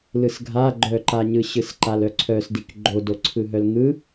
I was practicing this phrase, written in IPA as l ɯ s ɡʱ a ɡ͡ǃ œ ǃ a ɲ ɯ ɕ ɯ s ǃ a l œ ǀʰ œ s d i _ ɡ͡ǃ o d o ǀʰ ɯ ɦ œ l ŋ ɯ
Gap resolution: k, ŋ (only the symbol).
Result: k